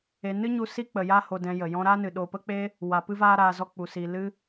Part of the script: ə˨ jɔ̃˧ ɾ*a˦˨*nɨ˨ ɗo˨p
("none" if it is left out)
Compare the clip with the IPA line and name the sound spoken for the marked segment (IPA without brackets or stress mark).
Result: a˦